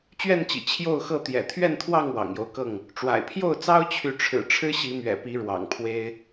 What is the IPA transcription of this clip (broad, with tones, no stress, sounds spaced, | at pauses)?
t͡ɕ ɥ ɛ˥˨ n t͡ɕ ḭ˨˩ t͡ɕʰ j o˥˨ ʊ̯ x ɤ˥˨ t̪ j ɛ̰˨˩ t̪ʰ ɥ ɛ˥˨ n t̪ʰ w ɑ˥˨ ŋ w ɑ̰˨˩ ŋ j o˦ ʊ̯ k ɤ˥˨ ŋ | ʈ͡ʂ w a̰˨˩ ɪ̯ pʰ j o˥˨ ʊ̯ t͡s ɑ˦ ʊ̯ t͡ɕʰ y˨˦ ʈ͡ʂʰ ɻ̩˨˩ ʈ͡ʂʰ ɻ̩˦ ɕ i˨˦ m ɥ ɛ̰˨˩ p i˨˦ ɻ w ɑ̰˨˩ ŋ pʰ w e˦ ɪ̯